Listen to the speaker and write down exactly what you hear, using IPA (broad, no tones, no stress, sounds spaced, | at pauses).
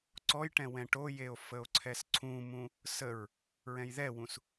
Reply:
ǀ ɔ j ʈ ɛ̃ w ɛ̃ ʈ o j e o̯ f ə o̯ ǀʰ ɛ s ǀʰ ũ m ũ | s ə ɹ | ɹ ɛ̃ j ð ɛ w ũ s